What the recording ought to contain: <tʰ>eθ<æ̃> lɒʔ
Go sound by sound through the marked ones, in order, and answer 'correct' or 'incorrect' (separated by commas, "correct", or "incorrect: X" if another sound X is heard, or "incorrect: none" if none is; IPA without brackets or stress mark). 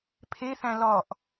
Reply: incorrect: pʰ, correct